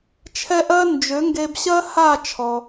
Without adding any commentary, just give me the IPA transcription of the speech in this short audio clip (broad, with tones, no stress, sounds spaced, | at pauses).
t͡ʃʰ ɛ˥ ʔ ɜ˥ n d͡ʒ ø˩˥ ŋ ɡ e˧ b ɕ ɜ˥ h a˥˩ t͡ʃʰ ɔ˩